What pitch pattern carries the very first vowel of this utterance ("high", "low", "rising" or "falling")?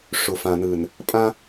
low